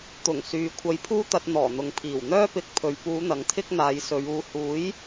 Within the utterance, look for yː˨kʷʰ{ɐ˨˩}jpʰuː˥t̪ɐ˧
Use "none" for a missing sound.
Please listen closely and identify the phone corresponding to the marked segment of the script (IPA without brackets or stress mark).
ɐ˧